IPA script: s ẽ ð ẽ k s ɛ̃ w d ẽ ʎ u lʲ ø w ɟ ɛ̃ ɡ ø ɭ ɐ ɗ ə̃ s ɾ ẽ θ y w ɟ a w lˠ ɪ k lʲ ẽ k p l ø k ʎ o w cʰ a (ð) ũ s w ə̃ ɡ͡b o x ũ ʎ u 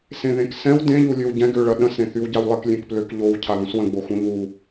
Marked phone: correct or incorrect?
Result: correct